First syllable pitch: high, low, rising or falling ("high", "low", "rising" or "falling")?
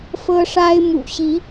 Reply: high